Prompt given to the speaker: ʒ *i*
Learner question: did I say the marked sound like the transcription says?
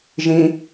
no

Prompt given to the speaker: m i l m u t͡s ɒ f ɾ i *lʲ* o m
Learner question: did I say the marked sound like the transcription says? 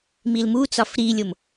yes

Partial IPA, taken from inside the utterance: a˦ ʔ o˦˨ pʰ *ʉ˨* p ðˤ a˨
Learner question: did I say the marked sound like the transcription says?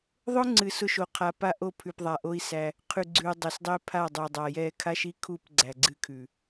yes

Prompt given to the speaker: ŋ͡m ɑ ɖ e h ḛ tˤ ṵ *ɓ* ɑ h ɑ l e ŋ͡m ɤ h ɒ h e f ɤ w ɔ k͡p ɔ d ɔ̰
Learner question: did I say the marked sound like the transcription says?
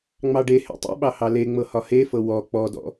yes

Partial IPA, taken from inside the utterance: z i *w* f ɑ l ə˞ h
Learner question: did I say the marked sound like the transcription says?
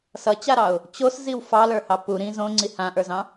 yes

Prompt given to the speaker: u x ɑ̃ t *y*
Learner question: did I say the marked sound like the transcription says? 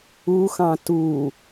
no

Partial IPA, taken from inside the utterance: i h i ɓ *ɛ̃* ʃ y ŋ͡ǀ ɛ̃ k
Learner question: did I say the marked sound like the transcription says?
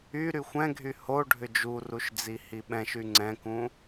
yes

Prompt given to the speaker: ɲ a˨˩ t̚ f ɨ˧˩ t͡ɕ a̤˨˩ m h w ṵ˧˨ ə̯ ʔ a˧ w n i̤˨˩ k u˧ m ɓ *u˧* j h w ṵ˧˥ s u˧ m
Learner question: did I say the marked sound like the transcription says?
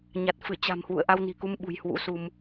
no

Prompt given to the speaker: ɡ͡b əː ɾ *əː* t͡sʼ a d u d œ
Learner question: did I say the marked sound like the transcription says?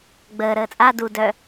yes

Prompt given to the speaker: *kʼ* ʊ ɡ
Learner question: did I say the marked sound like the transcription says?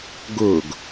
no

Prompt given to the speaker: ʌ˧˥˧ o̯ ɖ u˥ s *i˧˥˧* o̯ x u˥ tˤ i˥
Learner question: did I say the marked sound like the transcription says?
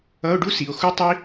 no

